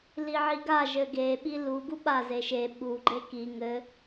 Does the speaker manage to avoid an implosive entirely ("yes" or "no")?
no